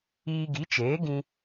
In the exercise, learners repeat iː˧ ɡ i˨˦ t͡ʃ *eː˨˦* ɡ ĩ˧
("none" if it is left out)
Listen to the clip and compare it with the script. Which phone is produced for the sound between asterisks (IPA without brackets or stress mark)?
eː˨˦